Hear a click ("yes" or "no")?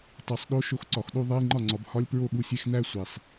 yes